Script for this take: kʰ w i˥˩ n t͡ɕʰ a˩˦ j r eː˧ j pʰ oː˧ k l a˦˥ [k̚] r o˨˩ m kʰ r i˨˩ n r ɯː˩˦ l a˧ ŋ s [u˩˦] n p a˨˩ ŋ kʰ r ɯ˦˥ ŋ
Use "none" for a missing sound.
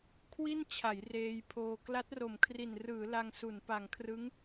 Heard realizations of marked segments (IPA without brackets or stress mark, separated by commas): t̚, u˩˦